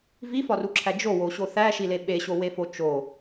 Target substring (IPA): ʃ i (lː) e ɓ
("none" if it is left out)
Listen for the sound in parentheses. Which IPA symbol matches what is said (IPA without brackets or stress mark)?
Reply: l